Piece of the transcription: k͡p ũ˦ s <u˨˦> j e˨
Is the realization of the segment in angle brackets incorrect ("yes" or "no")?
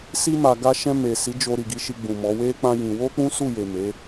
yes